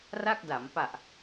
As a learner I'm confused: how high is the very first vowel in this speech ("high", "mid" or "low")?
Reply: low